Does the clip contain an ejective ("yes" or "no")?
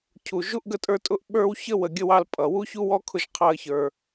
yes